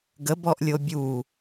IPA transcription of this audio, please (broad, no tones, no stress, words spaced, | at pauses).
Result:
ɡəbɔʔlʲo bʲu